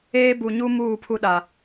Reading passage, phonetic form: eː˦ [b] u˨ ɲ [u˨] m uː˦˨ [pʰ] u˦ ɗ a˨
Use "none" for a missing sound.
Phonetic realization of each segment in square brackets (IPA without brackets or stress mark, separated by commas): b, u˦, pʰ